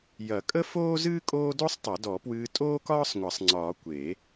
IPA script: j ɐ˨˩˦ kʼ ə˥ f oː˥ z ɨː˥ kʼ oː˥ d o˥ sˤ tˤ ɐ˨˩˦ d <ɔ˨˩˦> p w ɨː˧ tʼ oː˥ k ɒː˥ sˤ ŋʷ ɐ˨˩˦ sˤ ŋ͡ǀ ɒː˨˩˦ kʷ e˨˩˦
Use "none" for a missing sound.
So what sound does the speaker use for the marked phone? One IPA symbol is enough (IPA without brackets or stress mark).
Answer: ɔ˨˩˦